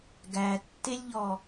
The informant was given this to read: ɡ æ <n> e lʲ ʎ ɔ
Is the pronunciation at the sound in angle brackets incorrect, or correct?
incorrect